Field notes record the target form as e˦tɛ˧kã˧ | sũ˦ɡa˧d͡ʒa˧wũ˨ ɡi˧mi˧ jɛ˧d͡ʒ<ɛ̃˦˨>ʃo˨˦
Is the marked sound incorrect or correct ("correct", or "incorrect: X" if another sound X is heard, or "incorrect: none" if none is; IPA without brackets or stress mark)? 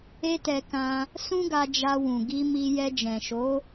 incorrect: ɛ̃˨